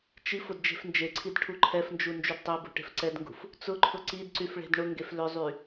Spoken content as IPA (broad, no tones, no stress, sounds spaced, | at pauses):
t͡ʃ i f ʊ d d͡ʒ e̤ f n d͡ʒ e ǀʰ i d ʈʰ u ǃʰ ɛ f n d͡ʒ u n d͡ʒ y d tˤ e b ṳ ʈ e̤ f ǀ ɛ d ŋ ɡ ṳ f | t͡s ʊ ǃʰ ʊ ǀ i d ǀ y f ɭ e̤ d ɳ ʊ ŋ ɡ e f l ʏ zˤ y